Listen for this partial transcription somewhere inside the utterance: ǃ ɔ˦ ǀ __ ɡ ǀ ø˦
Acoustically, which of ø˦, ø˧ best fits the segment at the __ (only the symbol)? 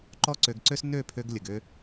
ø˧